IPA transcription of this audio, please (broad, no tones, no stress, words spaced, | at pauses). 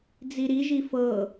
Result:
d͡ziɾiʒi fɤ